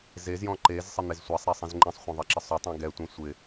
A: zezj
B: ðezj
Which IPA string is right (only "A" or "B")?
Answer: A